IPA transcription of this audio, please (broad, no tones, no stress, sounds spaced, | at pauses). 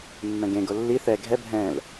mː ɛ̃ ɡ ẽ ɡ o lː i θ ɛ ɡʱ ɛ bʱ ɛ̃ l